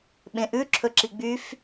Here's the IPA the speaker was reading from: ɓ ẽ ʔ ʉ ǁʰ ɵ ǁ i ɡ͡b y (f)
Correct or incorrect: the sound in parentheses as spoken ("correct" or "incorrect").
correct